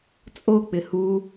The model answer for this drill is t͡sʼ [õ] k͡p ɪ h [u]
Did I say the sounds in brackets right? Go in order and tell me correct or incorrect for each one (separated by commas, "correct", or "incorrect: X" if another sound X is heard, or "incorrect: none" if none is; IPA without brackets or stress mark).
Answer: incorrect: o, correct